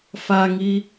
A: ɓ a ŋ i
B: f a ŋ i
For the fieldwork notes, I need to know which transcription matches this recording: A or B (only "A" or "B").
B